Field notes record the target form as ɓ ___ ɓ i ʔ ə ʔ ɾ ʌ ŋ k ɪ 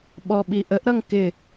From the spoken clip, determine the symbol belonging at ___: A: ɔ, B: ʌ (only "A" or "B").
A